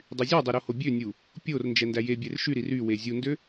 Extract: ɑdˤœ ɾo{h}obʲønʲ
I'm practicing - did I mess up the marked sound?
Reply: no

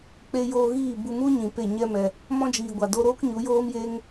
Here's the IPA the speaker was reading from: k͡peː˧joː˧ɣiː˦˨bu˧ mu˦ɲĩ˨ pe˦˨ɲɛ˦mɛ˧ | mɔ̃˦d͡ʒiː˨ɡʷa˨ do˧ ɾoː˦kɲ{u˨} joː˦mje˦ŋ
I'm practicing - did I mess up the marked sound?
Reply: yes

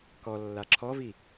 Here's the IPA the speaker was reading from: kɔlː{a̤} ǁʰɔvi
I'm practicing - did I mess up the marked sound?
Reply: yes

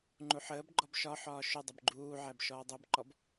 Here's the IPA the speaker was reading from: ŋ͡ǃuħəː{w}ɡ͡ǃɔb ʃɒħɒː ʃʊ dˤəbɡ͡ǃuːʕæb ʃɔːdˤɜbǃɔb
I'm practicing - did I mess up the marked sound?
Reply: yes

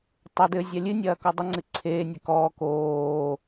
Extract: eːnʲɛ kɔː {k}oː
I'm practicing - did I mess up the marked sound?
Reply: no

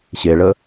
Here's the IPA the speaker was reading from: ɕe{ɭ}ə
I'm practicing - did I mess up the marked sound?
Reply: no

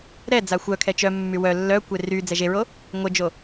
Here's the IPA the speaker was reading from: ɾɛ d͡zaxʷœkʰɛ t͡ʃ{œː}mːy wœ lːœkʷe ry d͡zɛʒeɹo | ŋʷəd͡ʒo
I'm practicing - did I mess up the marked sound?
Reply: yes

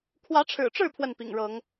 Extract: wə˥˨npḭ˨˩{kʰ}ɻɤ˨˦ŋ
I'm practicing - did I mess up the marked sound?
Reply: yes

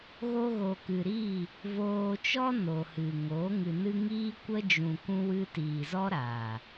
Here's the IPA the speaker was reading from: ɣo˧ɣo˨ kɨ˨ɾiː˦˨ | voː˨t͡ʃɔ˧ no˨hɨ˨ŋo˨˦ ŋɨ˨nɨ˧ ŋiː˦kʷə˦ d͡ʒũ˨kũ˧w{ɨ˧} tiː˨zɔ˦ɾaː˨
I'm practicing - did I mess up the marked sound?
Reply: no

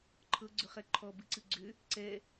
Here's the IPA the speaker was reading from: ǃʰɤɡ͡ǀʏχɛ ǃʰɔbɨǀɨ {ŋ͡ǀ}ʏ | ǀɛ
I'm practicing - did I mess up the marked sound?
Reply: yes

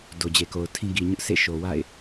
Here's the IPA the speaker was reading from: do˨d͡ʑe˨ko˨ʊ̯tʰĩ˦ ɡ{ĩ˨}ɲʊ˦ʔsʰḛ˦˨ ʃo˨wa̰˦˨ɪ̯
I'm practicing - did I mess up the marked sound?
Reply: yes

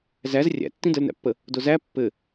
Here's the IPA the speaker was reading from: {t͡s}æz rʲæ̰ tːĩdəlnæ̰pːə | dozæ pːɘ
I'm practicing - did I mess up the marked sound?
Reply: yes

